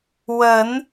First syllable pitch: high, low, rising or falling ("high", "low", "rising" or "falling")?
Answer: rising